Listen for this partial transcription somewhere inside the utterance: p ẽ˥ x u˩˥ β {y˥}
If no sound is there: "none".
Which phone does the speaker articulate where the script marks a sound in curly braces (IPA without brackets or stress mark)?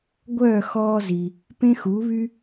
y˥